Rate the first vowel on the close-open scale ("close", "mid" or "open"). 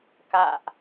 open